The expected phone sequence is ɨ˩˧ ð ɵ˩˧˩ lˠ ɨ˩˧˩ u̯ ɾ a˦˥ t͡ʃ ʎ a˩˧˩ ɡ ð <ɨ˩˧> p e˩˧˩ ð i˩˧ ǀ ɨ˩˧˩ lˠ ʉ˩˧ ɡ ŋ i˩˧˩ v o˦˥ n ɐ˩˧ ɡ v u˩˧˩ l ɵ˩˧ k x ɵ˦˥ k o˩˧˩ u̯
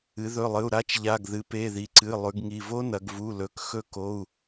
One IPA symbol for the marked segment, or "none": ɨ˩˧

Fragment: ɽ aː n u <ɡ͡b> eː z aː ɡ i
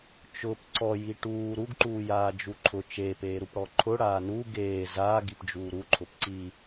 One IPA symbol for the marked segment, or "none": ɡ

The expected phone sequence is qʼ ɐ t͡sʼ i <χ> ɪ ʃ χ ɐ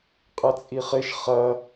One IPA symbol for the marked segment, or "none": χ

